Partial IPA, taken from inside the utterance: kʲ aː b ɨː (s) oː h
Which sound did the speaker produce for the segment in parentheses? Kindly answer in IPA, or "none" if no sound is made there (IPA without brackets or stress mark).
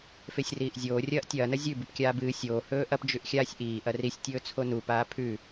sʲ